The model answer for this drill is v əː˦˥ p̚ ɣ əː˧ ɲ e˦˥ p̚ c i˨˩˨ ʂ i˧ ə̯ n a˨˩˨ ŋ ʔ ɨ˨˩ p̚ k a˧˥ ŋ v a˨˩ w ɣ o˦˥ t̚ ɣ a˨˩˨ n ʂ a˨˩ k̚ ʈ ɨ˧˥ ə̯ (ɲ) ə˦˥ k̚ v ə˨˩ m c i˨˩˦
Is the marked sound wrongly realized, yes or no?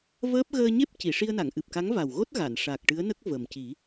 yes